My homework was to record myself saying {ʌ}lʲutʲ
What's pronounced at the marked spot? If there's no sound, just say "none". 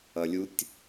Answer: ʌ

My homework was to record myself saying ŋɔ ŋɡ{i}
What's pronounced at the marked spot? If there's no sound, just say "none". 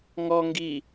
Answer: i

